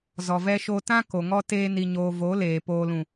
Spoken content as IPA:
z ɔ˨ v ɛ˦ ʃ o˦ t ã˦ k o˨ ŋ ɔ˦ t eː˦ n i˧ ɲ oː˧ v o˨˦ l eː˨ p oː˨ l ũ˨

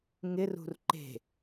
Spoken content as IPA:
ŋ ɪ r ṳ r ǃ e̤

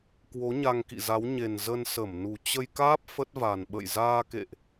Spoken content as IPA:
k w o˨˦ ɲ a˧ ŋ k ḭ˧˨ z a˨˦ w ɲ e˨˩ n z ə˧ n s ə˧˩ m n u˨˩ t͡ɕ ə˧ j k aː˦˥ p̚ f ə˦˥ t̚ v a˨˩ n ɓ ə̰˧˨ j z aː˧ k ḛ˧˨ ʔ

